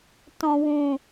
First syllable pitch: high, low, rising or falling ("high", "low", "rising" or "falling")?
low